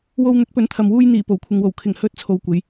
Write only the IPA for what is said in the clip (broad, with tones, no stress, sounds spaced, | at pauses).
w o˧ w n̪ ɵ˨˥ t̚ p ɵ˨˥ n t̪ʰ ɐ˨ m w uː˧ j n̪ iː˨˩ p o˨˩ w kʷʰ ɪ˨ ŋ w o˨˩ w kʰ ɪ˨˩ ŋ h ɵ˨˥ t̚ t͡sʰ o˨ w kʷ e˨˧ j